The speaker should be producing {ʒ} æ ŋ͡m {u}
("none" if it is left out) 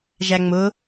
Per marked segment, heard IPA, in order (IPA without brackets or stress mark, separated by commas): ʒ, ʊ